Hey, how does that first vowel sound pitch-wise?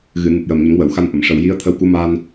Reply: low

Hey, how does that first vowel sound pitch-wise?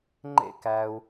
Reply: high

